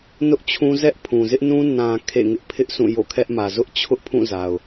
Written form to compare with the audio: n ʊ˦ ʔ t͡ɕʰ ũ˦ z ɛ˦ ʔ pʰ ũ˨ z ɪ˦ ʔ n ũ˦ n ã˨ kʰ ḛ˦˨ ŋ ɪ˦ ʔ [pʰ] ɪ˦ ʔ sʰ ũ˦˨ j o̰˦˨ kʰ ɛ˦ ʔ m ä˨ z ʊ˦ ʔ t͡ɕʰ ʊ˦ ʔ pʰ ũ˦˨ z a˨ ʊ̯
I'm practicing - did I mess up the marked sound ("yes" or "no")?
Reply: no